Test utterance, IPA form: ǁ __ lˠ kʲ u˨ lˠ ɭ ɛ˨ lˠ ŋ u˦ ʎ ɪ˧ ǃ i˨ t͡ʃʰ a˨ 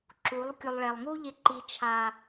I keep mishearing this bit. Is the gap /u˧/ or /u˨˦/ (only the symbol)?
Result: u˨˦